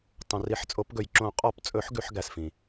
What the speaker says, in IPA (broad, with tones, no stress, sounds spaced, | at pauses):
tˤ õ˩ r i˨˩˦ ħ t͡sʼ o˨˩˦ p ɡ ɵ˩ j ǁ õ˨˩˦ qʼ ɔ˨˩˦ p t͡sʼ ɵ˨˩˦ ħ ɡ ʉ˨˩˦ ħ ɡ æ˩ s f ĩ˩